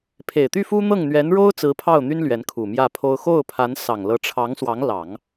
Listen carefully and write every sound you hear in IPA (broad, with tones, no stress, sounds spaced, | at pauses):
pʰ e˨˩ ɪ̯ t̪ y˥˩ f u˥ n̪ ɤ˥˩ ŋ n̪ ɥ ɛ˧˥ n ɻ o˥ ʊ̯ t͡s ɹ̩˧˥ pʰ ɑ˥˩ ʊ̯ n̪ y˥ n l ɥ ɛ˧˥ n kʰ u˨˩ m j ä˥˩ pʰ o˥ ʊ̯ x o˥˩ ʊ̯ pʰ a˧˥ n s ɑ˨˩ ŋ l ɤ˧˥ ʈ͡ʂʰ ɑ˧˥ ŋ s w ɑ˧˥ ŋ l ɑ˨˩˦ ŋ